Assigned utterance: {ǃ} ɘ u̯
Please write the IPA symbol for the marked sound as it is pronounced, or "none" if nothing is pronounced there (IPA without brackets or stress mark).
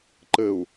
ǃ